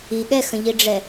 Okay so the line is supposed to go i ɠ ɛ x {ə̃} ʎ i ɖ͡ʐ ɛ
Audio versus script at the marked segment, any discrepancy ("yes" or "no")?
no